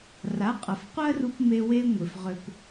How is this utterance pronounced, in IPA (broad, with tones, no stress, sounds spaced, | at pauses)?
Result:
r a˩˥ qʼ ɐ˩ f qʷ ɜ˥ r u˧ p m e˧ w e˧ ŋʷ ɪ˩ f ʁ ʏ˧ p